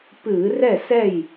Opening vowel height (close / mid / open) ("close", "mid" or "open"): close